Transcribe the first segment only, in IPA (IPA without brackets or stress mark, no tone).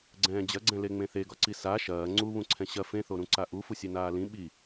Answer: ɡ͡ǀ